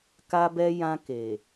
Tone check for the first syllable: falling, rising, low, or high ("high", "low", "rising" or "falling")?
high